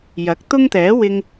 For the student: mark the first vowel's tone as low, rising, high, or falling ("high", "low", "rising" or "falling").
rising